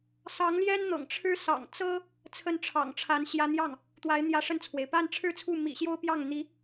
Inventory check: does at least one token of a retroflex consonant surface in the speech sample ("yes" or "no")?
yes